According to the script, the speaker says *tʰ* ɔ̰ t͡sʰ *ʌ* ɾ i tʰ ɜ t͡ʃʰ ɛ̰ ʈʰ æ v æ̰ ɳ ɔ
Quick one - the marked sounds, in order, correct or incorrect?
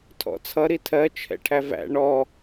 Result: correct, correct

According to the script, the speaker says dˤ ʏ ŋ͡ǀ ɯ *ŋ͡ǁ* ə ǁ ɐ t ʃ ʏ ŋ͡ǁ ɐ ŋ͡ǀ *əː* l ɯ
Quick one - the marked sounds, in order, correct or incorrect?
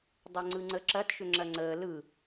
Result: incorrect, correct

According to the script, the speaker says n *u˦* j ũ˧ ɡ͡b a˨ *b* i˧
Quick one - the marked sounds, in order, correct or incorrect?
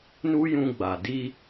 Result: correct, incorrect

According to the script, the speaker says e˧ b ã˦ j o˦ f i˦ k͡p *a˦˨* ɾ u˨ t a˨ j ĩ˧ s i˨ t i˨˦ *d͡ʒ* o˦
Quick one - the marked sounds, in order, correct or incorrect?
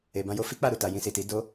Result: correct, incorrect

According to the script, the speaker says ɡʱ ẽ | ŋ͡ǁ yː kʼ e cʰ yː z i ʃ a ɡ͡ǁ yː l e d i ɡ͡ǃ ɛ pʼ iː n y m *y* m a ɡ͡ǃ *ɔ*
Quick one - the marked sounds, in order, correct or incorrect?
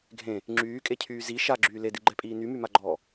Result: correct, incorrect

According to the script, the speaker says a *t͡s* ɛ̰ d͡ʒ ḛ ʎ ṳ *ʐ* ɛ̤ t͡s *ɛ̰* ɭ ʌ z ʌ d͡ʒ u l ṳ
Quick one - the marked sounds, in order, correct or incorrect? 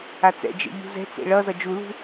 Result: correct, incorrect, incorrect

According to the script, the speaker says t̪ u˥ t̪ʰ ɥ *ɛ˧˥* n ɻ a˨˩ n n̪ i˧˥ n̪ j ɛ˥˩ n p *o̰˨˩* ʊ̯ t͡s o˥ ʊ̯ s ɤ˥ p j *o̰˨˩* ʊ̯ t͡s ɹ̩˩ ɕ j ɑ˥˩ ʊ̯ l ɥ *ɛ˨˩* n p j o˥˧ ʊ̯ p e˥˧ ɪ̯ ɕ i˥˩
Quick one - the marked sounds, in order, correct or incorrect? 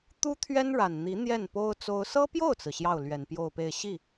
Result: incorrect, incorrect, incorrect, correct

